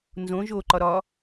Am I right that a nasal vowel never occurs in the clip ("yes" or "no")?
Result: no